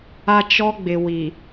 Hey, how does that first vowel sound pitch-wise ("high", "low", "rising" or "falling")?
high